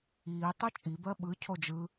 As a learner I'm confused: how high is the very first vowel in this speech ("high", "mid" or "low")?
high